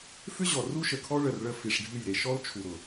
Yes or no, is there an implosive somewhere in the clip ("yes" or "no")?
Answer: no